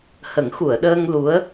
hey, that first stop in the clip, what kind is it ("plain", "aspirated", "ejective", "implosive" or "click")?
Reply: implosive